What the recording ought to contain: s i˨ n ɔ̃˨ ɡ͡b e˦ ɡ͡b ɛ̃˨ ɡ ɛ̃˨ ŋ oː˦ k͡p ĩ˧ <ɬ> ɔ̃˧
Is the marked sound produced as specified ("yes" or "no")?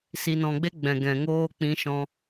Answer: no